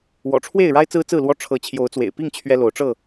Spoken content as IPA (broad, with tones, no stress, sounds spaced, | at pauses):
w ɔ̰˨˩ ʈ͡ʂʰ w e˥˨ ɪ̯ ɻ a˦ ɪ̯ t͡s ɹ̩˦ t͡s ɹ̩˥˨ l w ɔ˦ ʈ͡ʂʰ ɤ˨˦ t͡ɕʰ j o˨˦ ʊ̯ t͡s w ḛ˨˩ ɪ̯ p i˥˨ ŋ t͡ɕʰ ɥ ɛ˦ l o˨˦ ʊ̯ ʈ͡ʂ ɤ˥˨